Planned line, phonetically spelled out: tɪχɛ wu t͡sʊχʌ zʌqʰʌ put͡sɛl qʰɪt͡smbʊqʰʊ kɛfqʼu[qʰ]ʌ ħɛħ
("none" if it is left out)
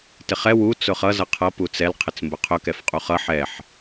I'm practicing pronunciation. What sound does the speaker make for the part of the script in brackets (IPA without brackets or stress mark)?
χ